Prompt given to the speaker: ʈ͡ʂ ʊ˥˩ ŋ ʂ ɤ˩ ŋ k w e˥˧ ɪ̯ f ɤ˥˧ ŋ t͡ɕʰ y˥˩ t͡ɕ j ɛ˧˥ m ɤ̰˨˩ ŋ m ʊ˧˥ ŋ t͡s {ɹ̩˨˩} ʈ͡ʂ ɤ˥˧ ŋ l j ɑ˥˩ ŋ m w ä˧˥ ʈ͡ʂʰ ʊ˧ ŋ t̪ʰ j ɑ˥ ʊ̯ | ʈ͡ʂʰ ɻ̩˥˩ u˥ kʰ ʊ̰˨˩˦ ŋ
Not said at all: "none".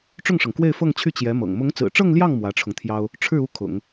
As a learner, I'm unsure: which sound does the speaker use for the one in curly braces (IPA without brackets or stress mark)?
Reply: ɹ̩˨˩